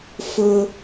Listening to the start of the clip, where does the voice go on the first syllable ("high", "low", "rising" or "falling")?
high